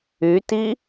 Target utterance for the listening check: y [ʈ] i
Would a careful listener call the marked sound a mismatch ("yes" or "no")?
yes